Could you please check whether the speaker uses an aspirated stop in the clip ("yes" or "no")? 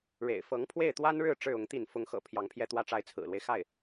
yes